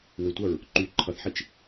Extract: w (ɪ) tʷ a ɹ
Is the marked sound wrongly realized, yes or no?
no